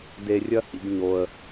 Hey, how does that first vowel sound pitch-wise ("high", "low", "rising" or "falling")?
low